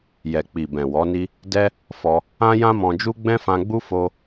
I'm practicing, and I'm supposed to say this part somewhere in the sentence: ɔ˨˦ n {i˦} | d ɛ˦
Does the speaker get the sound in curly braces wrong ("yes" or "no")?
no